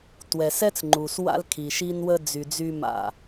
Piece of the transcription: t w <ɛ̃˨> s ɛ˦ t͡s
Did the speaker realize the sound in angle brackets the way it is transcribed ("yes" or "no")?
no